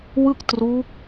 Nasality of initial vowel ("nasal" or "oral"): oral